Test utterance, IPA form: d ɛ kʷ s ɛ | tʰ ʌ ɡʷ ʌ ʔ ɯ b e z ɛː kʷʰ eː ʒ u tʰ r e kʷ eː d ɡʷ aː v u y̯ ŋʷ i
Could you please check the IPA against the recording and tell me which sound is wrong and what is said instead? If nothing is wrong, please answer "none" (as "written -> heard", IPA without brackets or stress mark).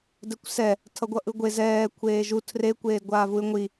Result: b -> ɡʷ